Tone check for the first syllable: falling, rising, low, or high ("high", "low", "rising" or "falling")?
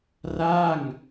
falling